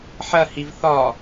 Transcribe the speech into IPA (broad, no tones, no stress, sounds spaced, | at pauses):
ħ ɐ h i v θ ɒ